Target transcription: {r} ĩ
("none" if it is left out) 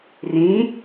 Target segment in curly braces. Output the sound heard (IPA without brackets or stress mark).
r